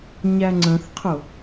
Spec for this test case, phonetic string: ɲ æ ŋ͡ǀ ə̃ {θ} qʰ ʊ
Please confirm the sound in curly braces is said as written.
yes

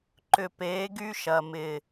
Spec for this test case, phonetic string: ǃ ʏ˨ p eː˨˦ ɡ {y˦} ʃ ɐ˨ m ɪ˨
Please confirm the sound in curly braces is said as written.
yes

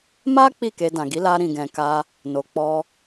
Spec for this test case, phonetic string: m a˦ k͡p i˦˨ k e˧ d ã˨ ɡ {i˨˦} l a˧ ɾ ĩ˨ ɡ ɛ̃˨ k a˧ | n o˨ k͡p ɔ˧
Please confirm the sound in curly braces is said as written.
yes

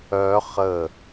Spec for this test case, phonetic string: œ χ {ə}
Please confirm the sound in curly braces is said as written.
yes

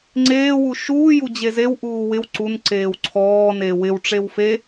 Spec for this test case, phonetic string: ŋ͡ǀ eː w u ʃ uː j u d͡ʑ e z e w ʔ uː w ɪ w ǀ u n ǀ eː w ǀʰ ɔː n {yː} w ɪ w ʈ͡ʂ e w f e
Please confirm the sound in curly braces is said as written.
no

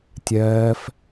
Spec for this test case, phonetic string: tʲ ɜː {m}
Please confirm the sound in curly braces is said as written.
no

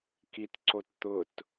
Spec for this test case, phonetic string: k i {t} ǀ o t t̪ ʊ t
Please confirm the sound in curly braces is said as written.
yes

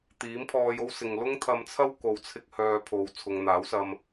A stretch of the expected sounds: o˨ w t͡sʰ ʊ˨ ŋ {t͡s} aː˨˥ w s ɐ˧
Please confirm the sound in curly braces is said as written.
no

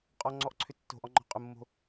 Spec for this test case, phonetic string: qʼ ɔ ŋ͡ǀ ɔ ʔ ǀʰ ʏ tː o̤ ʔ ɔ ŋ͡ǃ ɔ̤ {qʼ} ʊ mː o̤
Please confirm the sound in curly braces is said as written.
yes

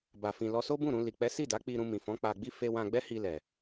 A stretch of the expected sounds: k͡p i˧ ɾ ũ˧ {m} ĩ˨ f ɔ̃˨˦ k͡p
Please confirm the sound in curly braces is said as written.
yes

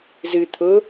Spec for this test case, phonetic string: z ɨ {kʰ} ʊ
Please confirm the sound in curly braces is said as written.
no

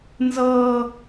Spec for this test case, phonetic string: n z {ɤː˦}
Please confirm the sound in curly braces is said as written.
yes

